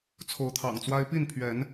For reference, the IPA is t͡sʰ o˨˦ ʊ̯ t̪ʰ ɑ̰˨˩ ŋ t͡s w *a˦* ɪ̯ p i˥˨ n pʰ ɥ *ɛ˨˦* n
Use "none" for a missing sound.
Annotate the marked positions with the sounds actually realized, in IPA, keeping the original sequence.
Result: a˦, ɛ˨˦

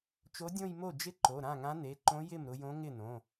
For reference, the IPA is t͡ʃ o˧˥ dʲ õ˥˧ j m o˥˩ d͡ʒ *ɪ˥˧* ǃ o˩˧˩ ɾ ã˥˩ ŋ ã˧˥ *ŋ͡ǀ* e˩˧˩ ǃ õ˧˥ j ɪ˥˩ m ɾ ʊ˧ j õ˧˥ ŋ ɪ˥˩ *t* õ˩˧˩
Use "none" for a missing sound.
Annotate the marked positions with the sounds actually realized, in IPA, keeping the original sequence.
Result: ɪ˥˧, n, n

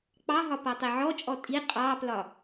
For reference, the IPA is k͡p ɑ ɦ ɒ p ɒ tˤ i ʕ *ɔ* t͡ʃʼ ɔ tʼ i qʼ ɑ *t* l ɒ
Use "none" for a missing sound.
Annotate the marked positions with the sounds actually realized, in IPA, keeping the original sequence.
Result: ɔ, p

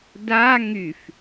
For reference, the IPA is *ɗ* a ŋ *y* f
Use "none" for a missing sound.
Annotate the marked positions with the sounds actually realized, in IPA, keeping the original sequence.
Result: d, y

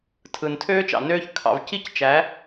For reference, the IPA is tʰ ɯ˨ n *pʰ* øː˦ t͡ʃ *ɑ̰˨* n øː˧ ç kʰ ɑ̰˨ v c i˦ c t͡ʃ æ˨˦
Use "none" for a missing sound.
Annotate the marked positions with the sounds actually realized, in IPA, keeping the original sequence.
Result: tʰ, ɑ̰˨

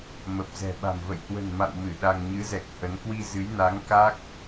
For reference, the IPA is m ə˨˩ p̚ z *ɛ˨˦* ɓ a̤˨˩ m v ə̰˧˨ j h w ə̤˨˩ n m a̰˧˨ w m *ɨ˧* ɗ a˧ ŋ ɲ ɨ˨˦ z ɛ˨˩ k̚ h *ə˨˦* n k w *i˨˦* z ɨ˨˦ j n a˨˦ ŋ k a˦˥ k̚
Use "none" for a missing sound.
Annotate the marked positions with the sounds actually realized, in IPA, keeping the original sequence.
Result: ɛ̤˨˩, ɨ˧˩, ə˨˦, i˧

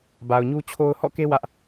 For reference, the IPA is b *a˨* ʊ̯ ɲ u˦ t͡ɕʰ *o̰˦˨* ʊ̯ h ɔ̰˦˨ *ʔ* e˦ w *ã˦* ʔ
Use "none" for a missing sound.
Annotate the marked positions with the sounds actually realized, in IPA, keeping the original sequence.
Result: a˨, o˦, k, ä˦

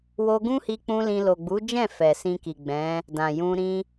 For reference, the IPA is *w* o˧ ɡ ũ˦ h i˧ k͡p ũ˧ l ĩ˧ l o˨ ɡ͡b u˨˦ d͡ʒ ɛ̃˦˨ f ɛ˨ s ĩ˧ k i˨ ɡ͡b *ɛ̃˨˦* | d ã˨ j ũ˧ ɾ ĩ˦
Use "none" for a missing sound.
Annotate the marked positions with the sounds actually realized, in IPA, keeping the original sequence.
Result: w, ɛ̃˨˦

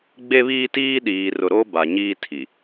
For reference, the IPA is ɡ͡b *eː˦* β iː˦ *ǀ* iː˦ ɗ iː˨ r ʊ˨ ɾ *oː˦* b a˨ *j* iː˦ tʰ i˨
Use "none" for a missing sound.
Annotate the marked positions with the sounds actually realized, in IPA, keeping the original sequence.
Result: e˦, t, o˦, ɲ

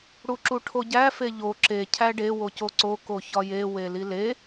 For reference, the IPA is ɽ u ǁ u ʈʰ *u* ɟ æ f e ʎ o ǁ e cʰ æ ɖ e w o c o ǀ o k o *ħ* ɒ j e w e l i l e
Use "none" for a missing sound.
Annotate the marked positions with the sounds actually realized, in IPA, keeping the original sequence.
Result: o, ç

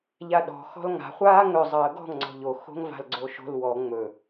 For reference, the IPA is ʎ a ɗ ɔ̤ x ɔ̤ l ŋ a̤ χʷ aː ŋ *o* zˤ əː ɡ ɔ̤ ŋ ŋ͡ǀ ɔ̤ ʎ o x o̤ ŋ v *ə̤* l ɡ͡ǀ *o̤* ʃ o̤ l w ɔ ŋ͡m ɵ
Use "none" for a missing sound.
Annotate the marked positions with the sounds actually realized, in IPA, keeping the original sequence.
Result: ɵ, a̤, o

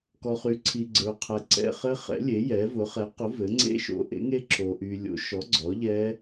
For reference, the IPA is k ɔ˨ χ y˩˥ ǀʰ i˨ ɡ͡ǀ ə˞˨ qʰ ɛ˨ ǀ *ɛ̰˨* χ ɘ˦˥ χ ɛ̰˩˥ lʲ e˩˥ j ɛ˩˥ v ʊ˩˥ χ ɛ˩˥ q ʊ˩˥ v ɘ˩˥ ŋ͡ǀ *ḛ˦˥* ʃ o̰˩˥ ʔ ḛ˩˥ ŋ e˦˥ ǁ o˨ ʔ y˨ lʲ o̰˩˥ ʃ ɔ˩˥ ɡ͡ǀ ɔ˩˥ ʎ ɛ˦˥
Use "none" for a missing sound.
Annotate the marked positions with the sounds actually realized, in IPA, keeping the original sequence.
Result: ɛ̰˨, ḛ˦˥

